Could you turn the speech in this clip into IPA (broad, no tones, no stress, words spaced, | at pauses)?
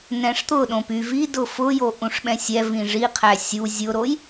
nɛ̃ʂt̪ʊɗõp y vidʊ fʊjo ʔũʂɓɛ̃sʲɛ vĩʐiqʰæ sʲu zʲʊɾoj